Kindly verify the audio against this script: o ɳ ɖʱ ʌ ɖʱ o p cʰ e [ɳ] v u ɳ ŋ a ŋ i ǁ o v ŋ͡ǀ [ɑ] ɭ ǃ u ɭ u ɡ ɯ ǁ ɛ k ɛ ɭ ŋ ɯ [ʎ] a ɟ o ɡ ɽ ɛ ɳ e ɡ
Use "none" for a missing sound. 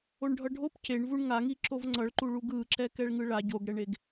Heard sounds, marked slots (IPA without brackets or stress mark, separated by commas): ɳ, ʌ, ɭ